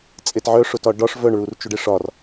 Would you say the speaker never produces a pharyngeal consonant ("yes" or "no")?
no